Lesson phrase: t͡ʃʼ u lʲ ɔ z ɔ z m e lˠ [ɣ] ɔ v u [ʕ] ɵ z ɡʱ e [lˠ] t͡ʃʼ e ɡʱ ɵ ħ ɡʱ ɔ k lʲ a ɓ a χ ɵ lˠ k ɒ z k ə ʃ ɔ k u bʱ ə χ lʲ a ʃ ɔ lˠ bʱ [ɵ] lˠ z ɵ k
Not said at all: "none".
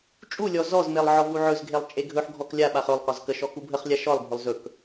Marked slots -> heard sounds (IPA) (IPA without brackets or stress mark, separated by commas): ʕ, ʕ, lˠ, ɵ